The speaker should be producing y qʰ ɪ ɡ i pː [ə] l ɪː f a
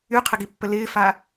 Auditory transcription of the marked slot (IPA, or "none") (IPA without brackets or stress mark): ə